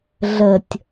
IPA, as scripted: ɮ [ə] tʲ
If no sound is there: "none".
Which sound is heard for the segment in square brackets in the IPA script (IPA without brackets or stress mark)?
ə